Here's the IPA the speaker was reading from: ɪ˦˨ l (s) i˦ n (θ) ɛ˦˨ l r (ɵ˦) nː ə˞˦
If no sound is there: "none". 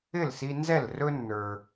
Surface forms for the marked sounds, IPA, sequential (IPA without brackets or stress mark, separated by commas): s, z, ɵ˦